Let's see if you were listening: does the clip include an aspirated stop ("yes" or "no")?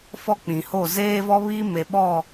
no